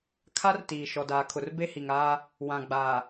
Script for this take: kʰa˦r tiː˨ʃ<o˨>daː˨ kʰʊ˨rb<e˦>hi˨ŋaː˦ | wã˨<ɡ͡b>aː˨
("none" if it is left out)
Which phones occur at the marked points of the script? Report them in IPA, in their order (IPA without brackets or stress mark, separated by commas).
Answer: ɔ˨, e˦, ɡ͡b